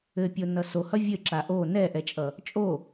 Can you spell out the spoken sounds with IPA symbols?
ɘpʲonʌ sohʌ vʲɘǁa ʔo nɛʔɛt͡ʃʼʌ | t͡ʃʼo

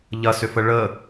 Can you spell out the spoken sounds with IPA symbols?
ʎɐsʏfə ɭə

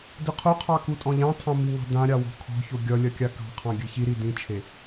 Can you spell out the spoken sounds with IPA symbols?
dɨqʰoqʰɑ kutʼɔ̃ʎɑ̃tʰɑ̃ miŋɑ̤dãɾʲɑ wɔ̤kʰɔ̤ço ɡʲʌ lʲɐkʲakɑ̤qʰɑ̃ ɡʲɨçiɾi dĩt͡ʃʰe

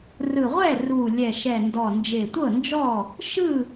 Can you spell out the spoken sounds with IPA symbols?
rɯ˨˩ʁʷɛ˥˨ru˨˩ lʲɛ˨˩ʃɛ˨˩ndɔ˨˩ nd͡ʒe˨˩tʷɤ˥˨nd͡ʒɔ˥˨ | ʃɯ˥˨

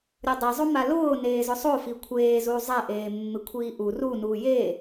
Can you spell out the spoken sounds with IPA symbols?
ɾʲodˤizˤoma lʊː neːzʊsˤo fikʷʰeːzuː zˤɛʔeː mːɪkʷʰiːʔu runuː je

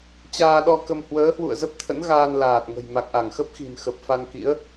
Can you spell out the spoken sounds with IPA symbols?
t͡ɕaː˧ɗɔ˧kə˧m hwəː˨˦hwṵ˧˨ə̯zə˦˥p̚t̪ʰə̰˧˥n ɣaː˧nlaː˨˩t̚ŋə̤˨˩j ma˨˩k̚ʔa˧˩ŋxə˦˥p̚xi̤˨˩n xə˨˩p̚fa˧nkḭ˧˥ə̯

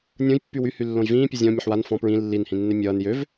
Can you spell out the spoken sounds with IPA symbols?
nʲõj pːywyhy lːõjvĩːpʲe zʲɔ̃ mʲʌħwan fɔ̃ pɹĩ lːinhĩnːe mʲʌːn jøv

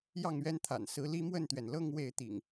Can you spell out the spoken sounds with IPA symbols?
jɑ˥˨ŋɥɛ˦nt̪ʰa̰˨˩n sɹ̩˦ li˦mwə˥˨nt̪ɥɛ˩n lɤ˥˨ŋ we˥˨ɪ̯ t̪ḭ˨˩ŋ

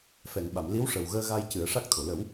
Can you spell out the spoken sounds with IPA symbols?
fɛ˨˩˨ŋɓa˨˩˨mli˧˥w ʂə˨˩wɣəː˧ɣa˧j cɨ˨˩˦ə̯ʂa˦˥k̚t̪ʰo˨˩˨ lə˨˩˦w

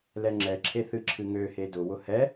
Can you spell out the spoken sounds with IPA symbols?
lɛŋ͡ǁɛǁʰe θɨǁʰɨŋøhe dʊwʊ hɛ

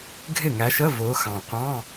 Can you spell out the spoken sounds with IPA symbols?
ɡʱɪ˥˩ŋæ˨˦ʃə˧˥˧ vʊː˨˦xɑ̃˨˩ qʷɑ̃˧˥˧

